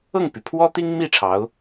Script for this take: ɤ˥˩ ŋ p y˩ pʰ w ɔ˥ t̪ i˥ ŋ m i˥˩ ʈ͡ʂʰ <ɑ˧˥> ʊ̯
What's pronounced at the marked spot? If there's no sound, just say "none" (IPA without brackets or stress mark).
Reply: ɑ˧˥